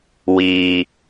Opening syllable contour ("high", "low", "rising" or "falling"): low